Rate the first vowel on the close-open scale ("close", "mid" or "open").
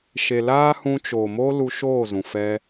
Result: mid